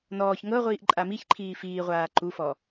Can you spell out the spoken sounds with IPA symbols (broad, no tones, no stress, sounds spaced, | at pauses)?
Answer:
n ɔː ç ŋ ɤ ʁʷ iː ʔ ǃʼ a m i ç ǃʰ iː f iː ʁʷ aː ǃ u f ɔ